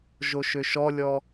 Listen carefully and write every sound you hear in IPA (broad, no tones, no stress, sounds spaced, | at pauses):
ʒ o ʃ ø ʃ ɔ lʲ ɔ